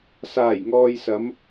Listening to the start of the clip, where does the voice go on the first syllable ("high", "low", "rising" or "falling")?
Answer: low